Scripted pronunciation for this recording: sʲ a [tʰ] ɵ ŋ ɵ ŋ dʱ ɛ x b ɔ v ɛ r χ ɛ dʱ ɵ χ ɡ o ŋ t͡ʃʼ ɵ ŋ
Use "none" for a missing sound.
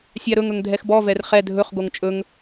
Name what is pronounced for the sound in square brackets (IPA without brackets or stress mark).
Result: ɾ